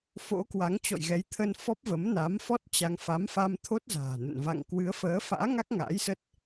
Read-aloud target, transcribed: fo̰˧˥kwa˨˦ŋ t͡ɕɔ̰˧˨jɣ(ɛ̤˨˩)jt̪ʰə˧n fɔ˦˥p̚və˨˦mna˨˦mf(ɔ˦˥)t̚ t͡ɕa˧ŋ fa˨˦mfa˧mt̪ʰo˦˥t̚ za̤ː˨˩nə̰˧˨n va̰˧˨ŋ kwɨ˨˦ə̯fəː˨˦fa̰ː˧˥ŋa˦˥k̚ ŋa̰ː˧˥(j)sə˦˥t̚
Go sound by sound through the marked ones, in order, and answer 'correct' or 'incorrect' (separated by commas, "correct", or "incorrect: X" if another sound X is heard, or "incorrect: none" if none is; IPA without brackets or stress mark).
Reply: incorrect: ɛ˨˦, correct, correct